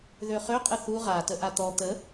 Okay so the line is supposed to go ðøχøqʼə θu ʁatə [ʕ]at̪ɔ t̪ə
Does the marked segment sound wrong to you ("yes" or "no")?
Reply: yes